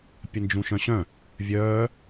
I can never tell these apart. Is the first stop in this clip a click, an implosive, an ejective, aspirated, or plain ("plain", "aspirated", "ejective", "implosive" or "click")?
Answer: plain